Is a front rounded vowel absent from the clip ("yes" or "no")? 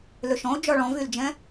no